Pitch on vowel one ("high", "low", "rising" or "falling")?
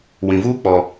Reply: low